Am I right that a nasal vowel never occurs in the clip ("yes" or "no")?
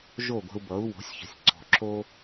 yes